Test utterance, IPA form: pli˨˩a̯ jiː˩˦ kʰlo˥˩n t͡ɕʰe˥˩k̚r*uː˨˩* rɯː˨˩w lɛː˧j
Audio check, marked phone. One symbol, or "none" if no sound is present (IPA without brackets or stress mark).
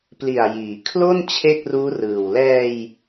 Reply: uː˦˥